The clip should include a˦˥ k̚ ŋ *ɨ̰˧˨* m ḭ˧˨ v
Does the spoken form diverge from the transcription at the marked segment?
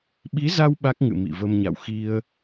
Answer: no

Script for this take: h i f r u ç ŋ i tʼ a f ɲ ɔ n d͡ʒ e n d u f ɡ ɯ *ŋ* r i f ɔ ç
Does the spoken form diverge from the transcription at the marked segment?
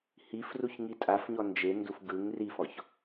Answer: no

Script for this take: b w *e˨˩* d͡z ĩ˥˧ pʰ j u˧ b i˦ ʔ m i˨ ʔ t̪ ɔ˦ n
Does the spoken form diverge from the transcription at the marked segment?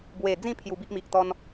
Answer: no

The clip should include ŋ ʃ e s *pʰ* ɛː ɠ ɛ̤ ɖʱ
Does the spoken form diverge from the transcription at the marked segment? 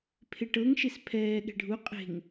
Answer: no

